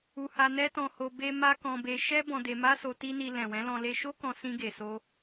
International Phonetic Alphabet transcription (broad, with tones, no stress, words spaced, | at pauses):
u˧ha˧ nɛ˦tɔ̃˧ho˧ be˧ ma˦ kɔ̃˧be˧ ʃɛ˦ bɔ̃˧de˧ma˦so˧ ti˦ni˧ lɛ̃˨wɛ̃˨˦lɔ̃˧ le˧ʃo˦kɔ̃˧ sĩ˧ɡe˨so˧